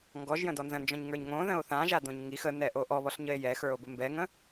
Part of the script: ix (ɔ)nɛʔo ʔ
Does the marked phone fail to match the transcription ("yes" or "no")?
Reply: yes